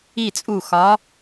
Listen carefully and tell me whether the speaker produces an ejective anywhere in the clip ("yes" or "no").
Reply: yes